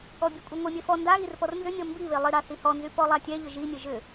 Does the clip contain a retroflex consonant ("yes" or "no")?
no